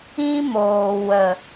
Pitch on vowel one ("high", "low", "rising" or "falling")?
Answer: high